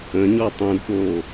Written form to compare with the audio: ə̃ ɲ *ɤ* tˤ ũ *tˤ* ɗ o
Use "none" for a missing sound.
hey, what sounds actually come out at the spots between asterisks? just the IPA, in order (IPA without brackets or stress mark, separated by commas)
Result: ɔ, d